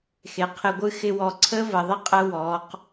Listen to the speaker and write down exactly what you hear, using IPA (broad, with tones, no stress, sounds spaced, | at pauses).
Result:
x e˨ qʰ ɪ˧ ɡʷ ɨ˦ x ɪ˧ w ɔ˨ ǀʰ ə˦ v ə˨ ðˤ ɪ˦ qʼ ə˧ w ɔ˨˦ q